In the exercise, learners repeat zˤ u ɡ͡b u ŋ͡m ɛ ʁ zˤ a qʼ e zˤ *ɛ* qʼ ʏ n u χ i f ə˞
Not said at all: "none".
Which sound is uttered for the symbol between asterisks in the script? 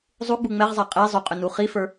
ʏ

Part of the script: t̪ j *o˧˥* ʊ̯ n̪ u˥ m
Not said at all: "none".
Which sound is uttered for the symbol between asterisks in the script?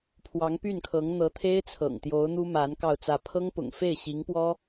o˧˥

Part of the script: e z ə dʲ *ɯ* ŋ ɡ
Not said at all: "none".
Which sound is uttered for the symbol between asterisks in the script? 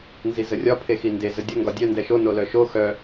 ə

